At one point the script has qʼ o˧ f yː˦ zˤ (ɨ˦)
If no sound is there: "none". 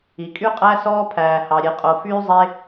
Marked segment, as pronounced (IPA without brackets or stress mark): e˦